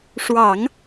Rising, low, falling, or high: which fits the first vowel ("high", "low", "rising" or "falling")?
low